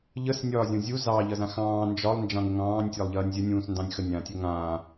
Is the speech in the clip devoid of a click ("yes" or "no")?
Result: yes